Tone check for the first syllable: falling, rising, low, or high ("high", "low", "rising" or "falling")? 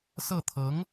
falling